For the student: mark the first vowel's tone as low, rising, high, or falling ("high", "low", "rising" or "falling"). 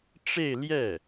falling